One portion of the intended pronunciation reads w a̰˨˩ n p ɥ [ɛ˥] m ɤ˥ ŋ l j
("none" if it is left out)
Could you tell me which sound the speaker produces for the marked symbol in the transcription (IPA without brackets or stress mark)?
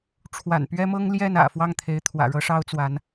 ɛ˥